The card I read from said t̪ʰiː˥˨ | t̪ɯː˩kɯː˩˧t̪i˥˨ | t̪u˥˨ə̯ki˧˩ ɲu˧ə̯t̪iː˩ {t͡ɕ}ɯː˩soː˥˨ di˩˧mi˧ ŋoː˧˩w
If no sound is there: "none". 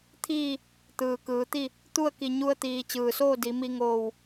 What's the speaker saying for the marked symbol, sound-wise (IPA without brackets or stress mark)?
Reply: t͡ɕ